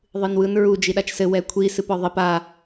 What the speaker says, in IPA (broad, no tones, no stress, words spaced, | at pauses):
ðˤɨnwɯn ɹu d͡ʒiɗat͡ʃsɘ wɛkʷʰi sɨpɔðˤɘp a